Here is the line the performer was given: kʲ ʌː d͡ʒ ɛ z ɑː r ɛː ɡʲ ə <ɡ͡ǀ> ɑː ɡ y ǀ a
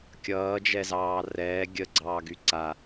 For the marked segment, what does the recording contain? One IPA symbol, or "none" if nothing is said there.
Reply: ɡ͡ǀ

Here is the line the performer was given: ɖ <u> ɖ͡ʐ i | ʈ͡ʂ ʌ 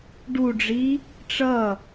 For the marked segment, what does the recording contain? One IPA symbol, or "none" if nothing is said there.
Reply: u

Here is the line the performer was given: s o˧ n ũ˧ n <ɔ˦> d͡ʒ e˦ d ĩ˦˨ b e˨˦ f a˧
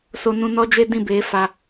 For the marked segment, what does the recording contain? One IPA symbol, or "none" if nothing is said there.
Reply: ɔ˦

